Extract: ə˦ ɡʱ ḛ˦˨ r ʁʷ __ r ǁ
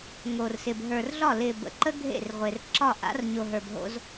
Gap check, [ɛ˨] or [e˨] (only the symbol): e˨